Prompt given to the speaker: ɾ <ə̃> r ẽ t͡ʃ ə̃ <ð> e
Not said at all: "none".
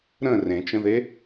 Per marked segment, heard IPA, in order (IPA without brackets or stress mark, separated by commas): ə̃, ð